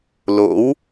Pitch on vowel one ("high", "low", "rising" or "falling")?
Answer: rising